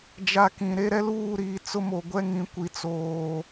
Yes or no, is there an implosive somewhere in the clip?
no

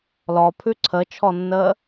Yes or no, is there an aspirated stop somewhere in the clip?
yes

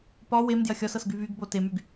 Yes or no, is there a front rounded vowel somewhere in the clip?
yes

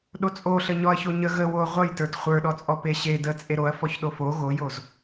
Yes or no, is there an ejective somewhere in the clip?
yes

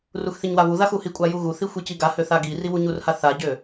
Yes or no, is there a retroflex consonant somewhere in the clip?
no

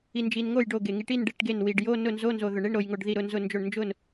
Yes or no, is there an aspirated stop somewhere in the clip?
no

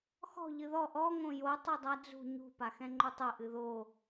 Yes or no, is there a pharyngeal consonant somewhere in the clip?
no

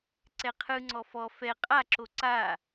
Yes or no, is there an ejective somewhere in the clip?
yes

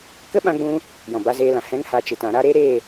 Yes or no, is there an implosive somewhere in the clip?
yes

